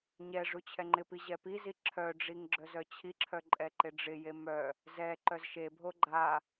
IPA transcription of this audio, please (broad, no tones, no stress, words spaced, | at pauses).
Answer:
ɲɛ ʐut͡ɕʰɛŋ͡ǃɪpi ʑɛpizi ǁʰœɖ͡ʐiŋ ɡ͡ǁœzœt͡ɕʰiǁʰœ ǃʼɛǃɪɖ͡ʐɪje mœ | zɛ ǃœzʃebʱo ɡ͡ǃa